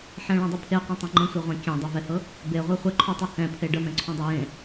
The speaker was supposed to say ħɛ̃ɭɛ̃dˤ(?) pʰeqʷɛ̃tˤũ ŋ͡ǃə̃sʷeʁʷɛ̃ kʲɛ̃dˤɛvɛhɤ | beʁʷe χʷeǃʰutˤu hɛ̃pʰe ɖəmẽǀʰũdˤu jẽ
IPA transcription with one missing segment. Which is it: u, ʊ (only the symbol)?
u